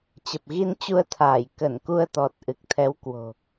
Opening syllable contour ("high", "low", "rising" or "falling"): low